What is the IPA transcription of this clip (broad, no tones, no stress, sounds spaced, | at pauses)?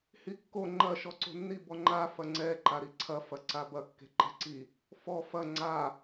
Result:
h i kː o ŋ͡ǃ ɐ ʃ ɔ ǀ o̤ nː i b ɔ ŋ͡ǃ a f ɐ ŋ͡ǀ ɛ ǃ a ɾ i ǀʰ ɐ f ɐ ǀ a b ɐ kː e̤ ǃ ɛ̤ ǀ i | f ɔ f ɐ ŋ͡ǀ a